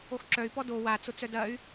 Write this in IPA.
o x ǁ œ y̯ p ɔ d o w a t͡s ʊ t͡s œ d ɐ y̯

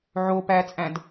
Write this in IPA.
ʕ o p æ t͡sʼ æ̃ d

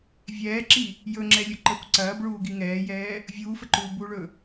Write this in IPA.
vʲ ɛː ǁ i | j ɵ ŋ͡ǁ ɛ lʲ ɵ ǃ ə kʷ ǀ ɐː b ɭ uː ɡ i ŋ ɛː j ɛː | vʲ uː f ə ǃ uː b u ɭ ɵ

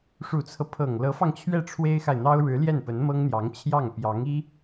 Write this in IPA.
ʂ u˨˩ t͡sʰ ɤ˦ pʰ ɤ˨˩ ŋ l ɤ˧˥ f ɑ˧ ŋ t͡ɕʰ ɥ ɛ˥˩ ʈ͡ʂʰ w e˥ ɪ̯ x a˨ ɪ̯ n̪ ɑ˥ ʊ̯ ɻ ɻ̩˧˥ l j ɛ˥˩ n p ə˧˥ n m ɤ˥ ŋ n̪ j ɑ˧˥ ŋ t͡ɕʰ j ɑ˥˩ ŋ p j ɑ˧˥ ŋ i˥

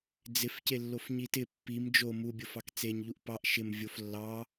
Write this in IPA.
d͡z ɪ f c e lː o f ɲ i t ɪ pː i m d͡ʒ o m u bʲ o f ɑ k t͡s e ɲ ʎ u ʔ p ɑ ʔ ʃ ɪ m vʲ o f lː ɑ

